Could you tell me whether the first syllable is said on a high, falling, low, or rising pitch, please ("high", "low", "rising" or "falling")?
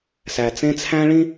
low